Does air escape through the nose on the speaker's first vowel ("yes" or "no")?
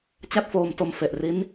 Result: no